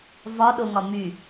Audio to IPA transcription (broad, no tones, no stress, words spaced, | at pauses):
vɒɗoŋɒ my